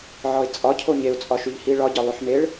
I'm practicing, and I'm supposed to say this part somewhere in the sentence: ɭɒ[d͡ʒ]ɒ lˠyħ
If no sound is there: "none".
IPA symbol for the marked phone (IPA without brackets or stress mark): ɟ